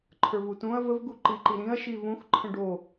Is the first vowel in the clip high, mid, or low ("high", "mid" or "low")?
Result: mid